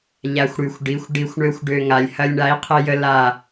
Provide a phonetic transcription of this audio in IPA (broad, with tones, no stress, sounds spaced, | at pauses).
ʎ a˨ xʷ ɽ y˨ xʷ ɖ i˨˦ xʷ ɖ i˨ xʷ ɳ ø˧ xʷ ɖ ø˨ ŋ a˨ lʲ h ɐ˧ lʲ ɳ a˨˦ i̯ qʰ e˧ j ə˧ l a˦˨